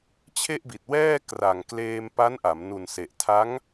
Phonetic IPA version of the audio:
t͡ɕʰe˥˩ʔbi˨˩t̚wɛː˥˩ kra˨˩ŋ kleː˧mpa˦˥nʔa˩˦m nu˨˩nse˨˩ʔtʰa˦˥ŋ

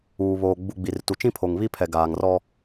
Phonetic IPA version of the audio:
uː˨βoː˨ ɡ͡bu˨ ɡ͡bi˨rtu˨t͡ʃĩ˦pʰo˨ŋ βi˦pʰɛ˨ ɡaː˨ŋrɔ˦

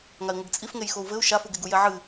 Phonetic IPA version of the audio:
ŋai̯ŋʷɘɡt͡sʼifŋej xou̯vɘu̯ ʃafuɡeɡu jɛʕɨ

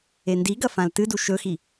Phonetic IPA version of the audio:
endiɡɐ fãltɨdu ʃɵxi

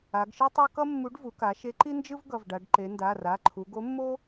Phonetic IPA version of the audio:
a˩˧ɡʃɯ˥tˤo˥ kʌ˥mːu˨˥ɖvu˩˧ka˩˧ ʃe˨˥ǃi˥nd͡ʒɯ˥v ɡʌ˩˧˩vɖa˩˧ɖ ǃe˩˧nda˩˧˩ra˩˧˩ǃʰu˩˧ ɡo˨˥mːo˥

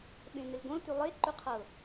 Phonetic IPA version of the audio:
ɓẽnɪlɡõl tʉlˠe ǃʉqʰɤ

